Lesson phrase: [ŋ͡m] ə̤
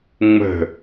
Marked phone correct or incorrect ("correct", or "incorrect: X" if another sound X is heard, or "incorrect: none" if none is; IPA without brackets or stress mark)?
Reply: correct